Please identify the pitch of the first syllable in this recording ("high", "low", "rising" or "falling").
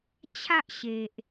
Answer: high